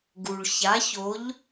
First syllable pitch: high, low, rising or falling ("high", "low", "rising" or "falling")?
low